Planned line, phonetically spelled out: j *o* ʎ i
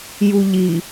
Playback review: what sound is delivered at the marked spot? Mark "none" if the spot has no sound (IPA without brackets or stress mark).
u